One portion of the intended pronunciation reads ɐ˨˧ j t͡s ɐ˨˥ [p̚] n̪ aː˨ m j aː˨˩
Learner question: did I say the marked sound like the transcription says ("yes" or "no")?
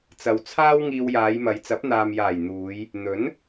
yes